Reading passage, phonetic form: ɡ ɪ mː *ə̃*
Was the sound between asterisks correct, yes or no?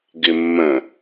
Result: yes